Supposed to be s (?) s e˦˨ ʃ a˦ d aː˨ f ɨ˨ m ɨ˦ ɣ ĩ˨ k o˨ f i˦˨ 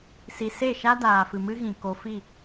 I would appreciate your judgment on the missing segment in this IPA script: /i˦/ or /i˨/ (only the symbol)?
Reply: i˨